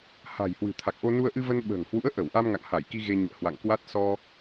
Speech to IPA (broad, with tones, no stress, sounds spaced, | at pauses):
h a̤˨˩ j h w ɨ̤˨˩ t̪ʰ a˨˩ k̚ ʔ o˧ n u˧ ə̯ ʔ ɨ˧ v ə˧ n ɓ ə̤ː˨˩ ŋ h w ṵ˧˥ ə̯ ʔ ə˧˩ w ʔ a˧ m ŋ a̰˧˨ ŋ h a˧˩ j k i˧ ɣ e˧ ɲ ṵ˧˨ ə̯ h w a̰˧˨ ŋ k w a˦˥ t̚ s ɔ˧